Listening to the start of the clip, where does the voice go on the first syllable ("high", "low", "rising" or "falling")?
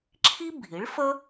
high